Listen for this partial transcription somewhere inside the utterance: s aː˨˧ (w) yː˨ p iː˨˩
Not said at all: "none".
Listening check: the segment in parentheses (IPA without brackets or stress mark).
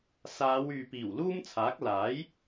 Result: w